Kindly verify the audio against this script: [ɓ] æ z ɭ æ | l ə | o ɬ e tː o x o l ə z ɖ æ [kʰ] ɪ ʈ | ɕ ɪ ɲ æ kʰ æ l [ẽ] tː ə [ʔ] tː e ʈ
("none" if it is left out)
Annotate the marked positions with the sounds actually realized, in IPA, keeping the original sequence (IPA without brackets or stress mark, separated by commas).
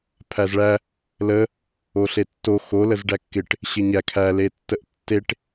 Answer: pʰ, kː, e, ʔ